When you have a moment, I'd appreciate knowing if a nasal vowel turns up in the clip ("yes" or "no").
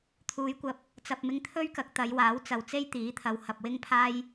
no